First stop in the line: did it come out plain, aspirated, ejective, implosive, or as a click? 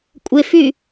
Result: ejective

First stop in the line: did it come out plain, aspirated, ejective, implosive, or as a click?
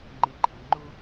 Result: click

